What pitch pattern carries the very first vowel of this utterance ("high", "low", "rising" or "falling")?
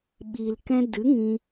low